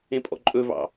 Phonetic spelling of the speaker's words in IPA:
ẽpʼɔ̰ǃʼɵvɑ̰

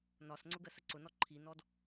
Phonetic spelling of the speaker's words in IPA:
nɒsŋ͡ǀʊ ɡɜsəǀʊnɔ ǃʰinɔd

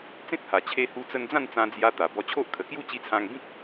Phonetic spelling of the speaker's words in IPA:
t͡sẽ˦t̚ha˨˩ t͡ɕʰe˧hu˧t͡sə˧nd͡zã˥˧n t͡sã˧d͡zja˧ t̪a˨˩bɔ˧t͡ɕʰo˦ʔ kʰə˨˩kju˥˧t͡ɕi˧t͡sʰã˧ŋ bĩ˦k̚

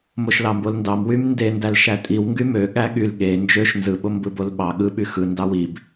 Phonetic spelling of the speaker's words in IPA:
moʃlɑmbolndɑm wymnde ndælʃætʼiw ŋɡymø ɠæɠyl ɠe nd͡ʒøʃ nzɯ ɓombɯbolɓɑ ɠɯ ɓyxɯ ndɑwib

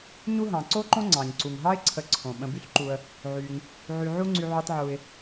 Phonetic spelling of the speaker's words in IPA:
ɲu˦ɦɑ̃˩ǀo˥ǃõ˥ ŋ͡ǀɑ̃˩ɲ ǀu˩ŋ ɦɑ˦ɪ̯ǀʰə˨ ǀʰõ˩ ɓə̃˨by˥ɬǃu˨ə̯ | ʕy˩ŋ | ʕy˩ʕu˦ŋ͡ǀy˨ ʕy˨tˤʕu˩ɪ̯

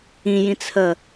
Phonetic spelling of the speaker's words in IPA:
ĩjĩt͡sʰə

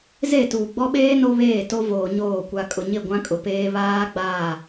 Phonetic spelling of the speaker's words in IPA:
ze˦˨tuː˨ ɡ͡bɔ˦ɓeː˦ no˦βeː˦˨ to˦voː˨ɲoː˦˨ kʷa˨kʼʊ˨ɲɪ˦˨ ɡʷã˦kʼʊ˨peː˦ βaː˦ɡ͡baː˦˨

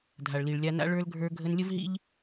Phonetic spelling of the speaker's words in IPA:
dʱa˨ɭli˨ɭlʲa˧na̰˦ ɭə˞˦lɡʱə˞˦ ɡʱə˦n lʲə˦vɦḭ˦ʎ

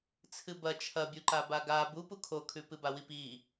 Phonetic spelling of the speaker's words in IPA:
t͡sʰɨbɐ t͡ʃʰɐbʲuǃaba ɡa bupu kʰokʰʉpɨ bawipi

